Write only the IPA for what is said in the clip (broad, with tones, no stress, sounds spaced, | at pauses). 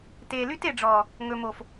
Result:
t eː˨ l y˦ t e˨ ɖ͡ʐ ɔː˨ | ŋ ɵ˨ m o˨ f